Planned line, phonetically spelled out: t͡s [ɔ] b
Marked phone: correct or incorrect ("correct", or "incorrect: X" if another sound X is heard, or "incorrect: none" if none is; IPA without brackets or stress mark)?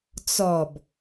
correct